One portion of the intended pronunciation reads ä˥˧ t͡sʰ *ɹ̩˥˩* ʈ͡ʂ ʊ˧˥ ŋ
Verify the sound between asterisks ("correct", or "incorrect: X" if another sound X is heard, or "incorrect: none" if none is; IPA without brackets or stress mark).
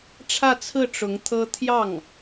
correct